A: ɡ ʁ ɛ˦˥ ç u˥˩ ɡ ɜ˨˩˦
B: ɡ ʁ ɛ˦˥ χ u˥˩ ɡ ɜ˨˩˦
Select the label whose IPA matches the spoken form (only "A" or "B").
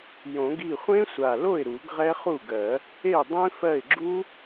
B